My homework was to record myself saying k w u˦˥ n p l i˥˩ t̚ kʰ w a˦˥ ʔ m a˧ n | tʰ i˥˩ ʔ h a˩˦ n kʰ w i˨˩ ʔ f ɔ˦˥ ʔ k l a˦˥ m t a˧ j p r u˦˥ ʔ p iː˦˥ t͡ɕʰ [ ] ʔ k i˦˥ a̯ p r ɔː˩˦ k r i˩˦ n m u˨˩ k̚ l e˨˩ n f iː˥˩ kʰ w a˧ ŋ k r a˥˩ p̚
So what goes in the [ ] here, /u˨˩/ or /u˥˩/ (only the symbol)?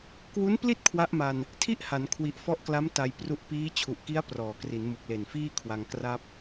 u˨˩